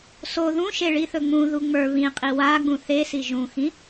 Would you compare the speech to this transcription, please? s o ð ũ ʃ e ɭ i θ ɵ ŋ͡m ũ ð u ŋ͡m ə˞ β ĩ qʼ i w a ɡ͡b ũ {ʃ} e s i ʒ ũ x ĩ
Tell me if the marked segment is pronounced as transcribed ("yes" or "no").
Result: no